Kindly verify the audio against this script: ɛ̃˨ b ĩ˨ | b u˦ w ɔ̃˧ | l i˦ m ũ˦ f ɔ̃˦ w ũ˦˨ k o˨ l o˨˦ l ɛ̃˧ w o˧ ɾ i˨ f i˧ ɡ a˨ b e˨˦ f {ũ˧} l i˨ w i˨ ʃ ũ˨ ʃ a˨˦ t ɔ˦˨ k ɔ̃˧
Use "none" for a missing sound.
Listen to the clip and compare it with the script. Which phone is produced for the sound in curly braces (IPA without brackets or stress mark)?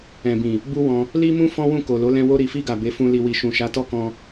ũ˧